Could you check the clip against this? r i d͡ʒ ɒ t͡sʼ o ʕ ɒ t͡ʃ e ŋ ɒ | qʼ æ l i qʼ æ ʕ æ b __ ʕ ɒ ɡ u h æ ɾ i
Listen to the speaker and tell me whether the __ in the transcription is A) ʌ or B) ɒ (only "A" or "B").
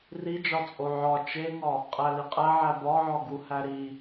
B